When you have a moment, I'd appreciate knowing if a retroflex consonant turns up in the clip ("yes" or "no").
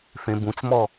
no